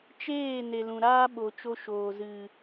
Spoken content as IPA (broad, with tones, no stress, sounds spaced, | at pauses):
t͡ʃ eː˦˨ n e˨ l ũ˨ ɾ aː˦ ɓ o˨ t͡ʃ o˧ ʃ oː˨ z ɨ˨